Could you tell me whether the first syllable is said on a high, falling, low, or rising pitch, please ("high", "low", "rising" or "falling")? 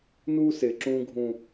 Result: high